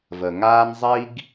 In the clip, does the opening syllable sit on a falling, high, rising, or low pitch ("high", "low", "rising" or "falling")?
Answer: low